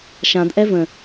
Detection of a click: absent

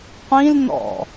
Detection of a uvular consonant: present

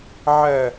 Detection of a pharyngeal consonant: present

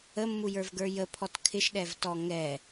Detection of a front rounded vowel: absent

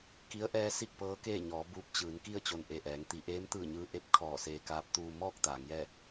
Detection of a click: absent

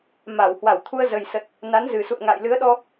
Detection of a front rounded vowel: absent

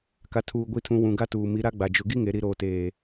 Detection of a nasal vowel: present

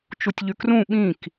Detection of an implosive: present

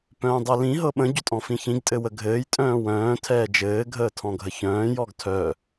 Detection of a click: absent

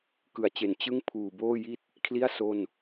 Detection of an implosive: absent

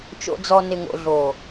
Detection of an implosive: absent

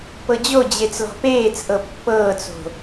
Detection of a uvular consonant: absent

